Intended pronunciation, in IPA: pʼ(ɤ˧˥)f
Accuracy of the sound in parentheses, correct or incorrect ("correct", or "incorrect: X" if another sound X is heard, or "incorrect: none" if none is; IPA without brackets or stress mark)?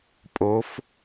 incorrect: o˧˥